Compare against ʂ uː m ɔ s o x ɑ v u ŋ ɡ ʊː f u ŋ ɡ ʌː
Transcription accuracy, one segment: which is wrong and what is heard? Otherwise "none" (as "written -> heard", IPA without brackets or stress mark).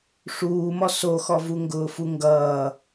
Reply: ɑ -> ɔ